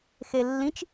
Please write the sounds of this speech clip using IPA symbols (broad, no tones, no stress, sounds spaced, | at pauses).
x e lː ĩ t͡ʃ